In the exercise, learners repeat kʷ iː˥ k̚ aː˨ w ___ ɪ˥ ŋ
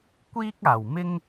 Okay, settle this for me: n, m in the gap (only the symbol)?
m